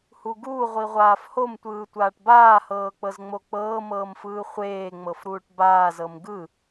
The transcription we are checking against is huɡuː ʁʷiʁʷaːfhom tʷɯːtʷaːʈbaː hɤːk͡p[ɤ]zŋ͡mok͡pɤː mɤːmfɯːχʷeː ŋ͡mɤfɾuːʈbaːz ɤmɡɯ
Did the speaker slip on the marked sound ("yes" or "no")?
no